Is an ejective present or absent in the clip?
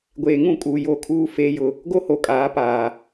present